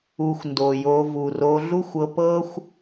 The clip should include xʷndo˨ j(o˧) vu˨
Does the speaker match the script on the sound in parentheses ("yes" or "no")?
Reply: yes